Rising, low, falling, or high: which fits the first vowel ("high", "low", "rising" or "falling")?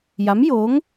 rising